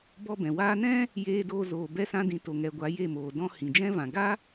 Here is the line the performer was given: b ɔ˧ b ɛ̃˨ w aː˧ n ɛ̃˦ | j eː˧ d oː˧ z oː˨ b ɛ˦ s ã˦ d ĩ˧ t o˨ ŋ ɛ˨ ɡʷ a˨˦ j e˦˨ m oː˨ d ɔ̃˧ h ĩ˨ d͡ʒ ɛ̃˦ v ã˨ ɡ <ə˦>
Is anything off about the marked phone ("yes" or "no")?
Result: yes